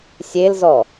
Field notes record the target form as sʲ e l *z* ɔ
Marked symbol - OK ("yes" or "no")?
yes